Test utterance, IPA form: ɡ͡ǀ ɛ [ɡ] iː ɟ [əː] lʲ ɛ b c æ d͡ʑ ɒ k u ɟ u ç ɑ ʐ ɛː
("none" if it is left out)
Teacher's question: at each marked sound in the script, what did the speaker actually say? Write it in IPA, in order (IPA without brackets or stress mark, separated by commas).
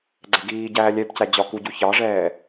ɡ, æː